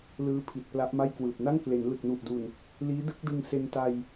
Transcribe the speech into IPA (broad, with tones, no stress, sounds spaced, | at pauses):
l ɯː˦˥ pʰ i˨˩ t̚ p l a˦˥ ʔ m a˥˩ j k w ɯː˨˩ p̚ n a˥˩ ŋ k l e˩˦ n l ɯ˨˩ k̚ n u˨˩ ʔ d u˨˩ n | l iː˦˥ d ɯ˦˥ k̚ d ɯ˧ ŋ s e˧ n t a˧ j